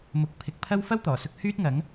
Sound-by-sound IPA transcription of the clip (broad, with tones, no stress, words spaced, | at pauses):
mʊ˨˥k̚ pʰɪ˨˥k̚pʰɐ˥w fɐ˥wt̪ɔː˨˩sʊ˧k̚ hyː˥t̚ŋɐ˨˥ŋ